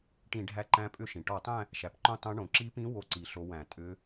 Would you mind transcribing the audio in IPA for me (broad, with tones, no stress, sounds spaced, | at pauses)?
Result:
ʈ ĩ˧˩˧ ɖʱ æ˧˥ ǃ æ̃˧˥ pʼ ʏ˥˧ ʃ ĩ˩ ʈ ɔ˧˩˧ tˤ æ̃˥˧ | ʃ æ˩ p ǃ õ˥˧ tˤ õ˧˥ ɳ õ˩ ǁ i˧˥ p ĩ˧˥ w o˥˧ ǀ i˧˩˧ ɬ o˧˥ w æ̃˧˩˧ tʼ ʏ˧˥